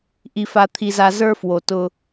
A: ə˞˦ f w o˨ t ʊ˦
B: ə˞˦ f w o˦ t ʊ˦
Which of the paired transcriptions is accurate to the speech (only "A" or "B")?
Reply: A